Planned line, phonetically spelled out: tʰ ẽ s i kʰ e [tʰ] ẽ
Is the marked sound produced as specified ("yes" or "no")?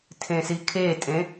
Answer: no